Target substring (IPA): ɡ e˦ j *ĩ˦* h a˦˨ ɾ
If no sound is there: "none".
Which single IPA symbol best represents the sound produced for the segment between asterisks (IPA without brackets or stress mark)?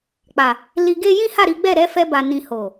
ĩ˦